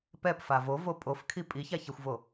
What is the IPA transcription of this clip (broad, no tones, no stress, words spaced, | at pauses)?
pɛpfa vovo pʼofkʰi pʼiçaçɛxʷvo